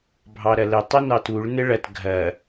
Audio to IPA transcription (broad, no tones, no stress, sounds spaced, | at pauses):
bʱ ɑ ɾ ɐ l ɘ tˤ ɘ n ɑ t u ɭ n ɘ ɭ ɐ t ɡʱ ɐ